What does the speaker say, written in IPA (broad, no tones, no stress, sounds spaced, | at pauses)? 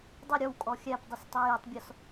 dˤ ə ɾʲ ɔ w kʼ ɔ xʲ æ p dˤ ʌ s tˤ ɛ j ɛ tˤ bʲ ɔ s